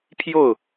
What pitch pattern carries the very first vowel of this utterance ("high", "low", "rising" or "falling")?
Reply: falling